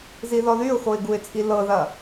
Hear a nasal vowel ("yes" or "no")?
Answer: no